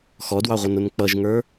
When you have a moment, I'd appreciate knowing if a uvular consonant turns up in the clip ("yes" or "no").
yes